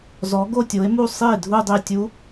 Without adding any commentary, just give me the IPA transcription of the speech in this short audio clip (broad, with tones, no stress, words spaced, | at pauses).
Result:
zɔ˨˥ɡo˥˧tʲo˨˥e̯mu˥˧ sˤi˥˩e̯dʱu˥˧dˤe˥˩tʲu˦˥